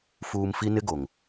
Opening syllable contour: low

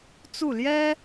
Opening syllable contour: falling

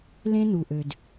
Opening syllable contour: high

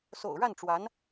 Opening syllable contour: low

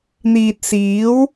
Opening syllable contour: low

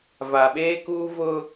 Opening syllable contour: low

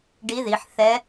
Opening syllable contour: rising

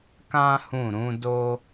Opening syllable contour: high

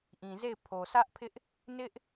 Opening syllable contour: low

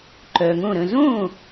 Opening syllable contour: low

